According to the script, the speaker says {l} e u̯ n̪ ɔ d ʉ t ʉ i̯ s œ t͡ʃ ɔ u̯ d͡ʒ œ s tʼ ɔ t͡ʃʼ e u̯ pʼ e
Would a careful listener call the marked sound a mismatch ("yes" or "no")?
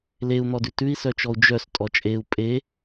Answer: no